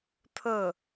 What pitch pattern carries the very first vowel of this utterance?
falling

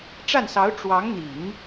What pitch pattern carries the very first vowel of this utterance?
falling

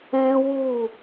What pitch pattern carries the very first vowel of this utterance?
high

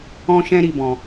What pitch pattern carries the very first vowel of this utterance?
high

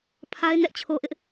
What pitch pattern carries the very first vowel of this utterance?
high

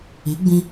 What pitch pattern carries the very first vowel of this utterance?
rising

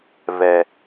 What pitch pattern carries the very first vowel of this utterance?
low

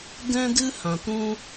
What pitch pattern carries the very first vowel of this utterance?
high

